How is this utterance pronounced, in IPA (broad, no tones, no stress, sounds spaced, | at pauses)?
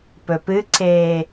p ɵ p ɨ ǀ eː